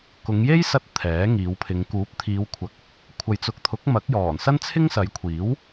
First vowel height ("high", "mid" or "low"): high